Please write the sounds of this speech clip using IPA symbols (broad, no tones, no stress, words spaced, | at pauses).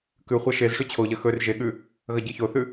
kʉ χʷaʃezʂʉ t͡ɕʰoʎɐ xɵr ʒeɠʉ | ɣɐɟɨçoθʉ